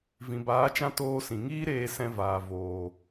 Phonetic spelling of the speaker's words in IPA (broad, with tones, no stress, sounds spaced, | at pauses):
v ĩ˨ b aː˨˦ t͡ʃ ã˦ t oː˧ s ĩ˨ ŋ iː˦ ɾ eː˧ s ɛ̃˧ v aː˨ v oː˨